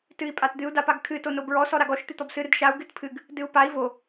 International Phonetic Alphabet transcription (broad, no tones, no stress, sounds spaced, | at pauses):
t ɨ i̯ pʼ a t d̪ ɨ u̯ d a p a ɡ kʰ ɨ t o n o b ɹ ɔ s ɔ ɾ a ɡ ɔ ʃ t̪ ɨ t̪ ɔ b s ɨ ɾ ɨ d ʃ a u̯ ɡ ɨ t pʰ ɨ ɡ | d ɨ u̯ p a i̯ v o